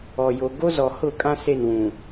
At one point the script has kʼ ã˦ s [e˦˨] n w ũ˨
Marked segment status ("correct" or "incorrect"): correct